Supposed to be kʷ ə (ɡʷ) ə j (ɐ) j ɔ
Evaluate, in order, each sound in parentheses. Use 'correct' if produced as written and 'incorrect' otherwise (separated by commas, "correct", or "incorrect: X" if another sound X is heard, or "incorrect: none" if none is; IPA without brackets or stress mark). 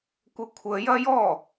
incorrect: kʷʰ, correct